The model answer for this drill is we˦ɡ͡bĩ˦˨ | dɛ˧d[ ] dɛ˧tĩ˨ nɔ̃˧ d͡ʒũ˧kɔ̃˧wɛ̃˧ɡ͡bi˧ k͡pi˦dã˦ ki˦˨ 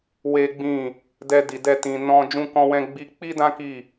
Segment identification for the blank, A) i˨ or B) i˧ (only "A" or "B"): A